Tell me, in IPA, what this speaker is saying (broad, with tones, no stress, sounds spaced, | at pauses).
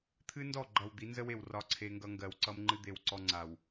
t̪ʰ ɨ˦ n d ɔ˦˨ ɡ͡ǃ ʌ˨ w d̪ i˨˦ n z ə˦ w e˨ w r ɒ˦ ǀʰ e˦ ŋ ɡ ʌ˦ ŋ ɡ ɜ˨ w ǀ ʌ˦ m ŋ͡ǃ ɨ˦ d̪ e˦ w ǀ ɔ˦ ŋ͡ǀ a˨ w